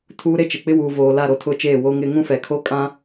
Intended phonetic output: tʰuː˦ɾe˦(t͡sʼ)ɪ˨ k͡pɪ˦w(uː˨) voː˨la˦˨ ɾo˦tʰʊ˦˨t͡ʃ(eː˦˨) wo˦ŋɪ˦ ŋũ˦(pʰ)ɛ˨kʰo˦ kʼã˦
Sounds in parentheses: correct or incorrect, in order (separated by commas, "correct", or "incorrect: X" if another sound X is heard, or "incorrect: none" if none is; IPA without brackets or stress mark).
incorrect: t͡ʃ, correct, correct, incorrect: f